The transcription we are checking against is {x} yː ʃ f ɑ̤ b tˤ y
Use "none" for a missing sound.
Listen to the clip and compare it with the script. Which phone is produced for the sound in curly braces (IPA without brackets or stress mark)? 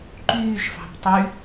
ǃ